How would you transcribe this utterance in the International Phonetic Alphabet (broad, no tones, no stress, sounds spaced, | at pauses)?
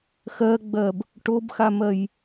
x ɜ ɡ͡b ɜ b | ʈ o b x a m ɜ j